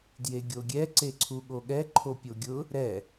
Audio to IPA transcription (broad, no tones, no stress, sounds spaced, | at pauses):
d j e ɡʲ o ɡʲ ɛ ǀ e ǀʰ u ɠ o ɠ ɛ ǃʰ o pʲ o ɡʲ ʊ | ɾ ɛ